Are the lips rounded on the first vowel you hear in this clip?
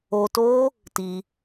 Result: yes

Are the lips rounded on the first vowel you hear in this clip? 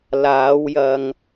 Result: no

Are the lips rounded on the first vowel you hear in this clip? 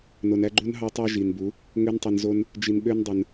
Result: yes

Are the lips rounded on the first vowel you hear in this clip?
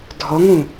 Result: yes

